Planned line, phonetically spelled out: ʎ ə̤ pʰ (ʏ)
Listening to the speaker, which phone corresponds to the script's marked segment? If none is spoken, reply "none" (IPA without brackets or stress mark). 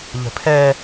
ɛ